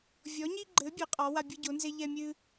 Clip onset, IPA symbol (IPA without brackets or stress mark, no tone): vʲ